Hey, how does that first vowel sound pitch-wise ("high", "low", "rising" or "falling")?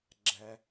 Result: low